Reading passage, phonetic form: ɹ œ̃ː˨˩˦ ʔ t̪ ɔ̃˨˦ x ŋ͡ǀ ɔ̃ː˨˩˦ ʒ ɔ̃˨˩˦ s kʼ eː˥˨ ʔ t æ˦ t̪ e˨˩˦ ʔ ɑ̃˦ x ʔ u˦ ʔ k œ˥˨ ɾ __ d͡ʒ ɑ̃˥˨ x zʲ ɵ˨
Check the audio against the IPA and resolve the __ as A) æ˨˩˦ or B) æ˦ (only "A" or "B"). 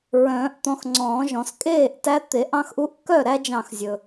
B